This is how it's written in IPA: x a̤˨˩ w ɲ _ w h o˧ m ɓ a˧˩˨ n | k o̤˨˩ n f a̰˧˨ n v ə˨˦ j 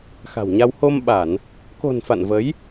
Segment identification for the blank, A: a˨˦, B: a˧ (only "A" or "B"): B